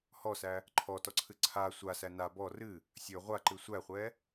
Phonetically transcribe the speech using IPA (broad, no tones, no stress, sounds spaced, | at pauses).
h ɔ s æ | ǃʰ ɔ t ɔ ǀʰ ɨ ǀʰ a sʷ a s æ n a b ɔ r ɨ | sʲ ɵ ʁʷ a ǃ ɨ sʷ æ χʷ ɛ